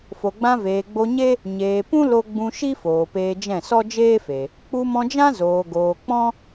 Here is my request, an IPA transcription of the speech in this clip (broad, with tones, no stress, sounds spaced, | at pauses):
f o˨ ɡ͡b ã˧ v eː˨ ɡ͡b o˧ ɲ e˦ | ɲ eː˨ p ũ˦ l o˧ ɡ͡b ũ˧ ʃ i˦ f oː˨ p eː˧ d͡ʒ ɛ̃˦˨ s ɔ˦ d͡ʒ eː˦ f e˨ | k͡p u˧ m ɔ̃˧ d͡ʒ ã˦ z oː˨ ɡ oː˨ k͡p ɔ̃˦